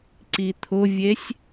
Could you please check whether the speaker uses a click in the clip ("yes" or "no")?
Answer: yes